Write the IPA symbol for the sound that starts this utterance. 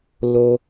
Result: l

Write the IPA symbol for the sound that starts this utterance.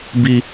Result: b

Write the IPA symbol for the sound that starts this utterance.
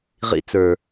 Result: ʁ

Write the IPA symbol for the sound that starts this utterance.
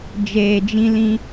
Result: d͡ʒ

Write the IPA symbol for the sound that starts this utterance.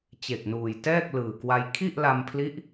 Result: t͡ɕ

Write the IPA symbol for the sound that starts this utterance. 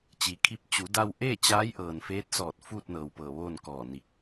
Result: t͡ɕ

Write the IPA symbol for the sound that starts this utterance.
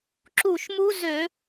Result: ǁ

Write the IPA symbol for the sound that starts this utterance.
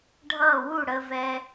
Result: ɖʱ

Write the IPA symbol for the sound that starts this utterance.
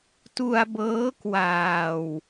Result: t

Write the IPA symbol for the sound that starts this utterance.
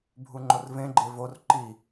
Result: bʱ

